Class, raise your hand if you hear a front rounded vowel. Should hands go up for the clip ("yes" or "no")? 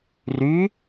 yes